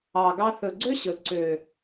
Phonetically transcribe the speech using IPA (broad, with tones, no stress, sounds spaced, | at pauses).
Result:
ɑ˨ ɡ ɑ˧ θ ɵ˨ ɡ͡ǀ ø˦ ɕ ɵ˨ ǀ ø˨